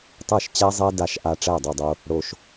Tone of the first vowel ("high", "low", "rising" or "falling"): falling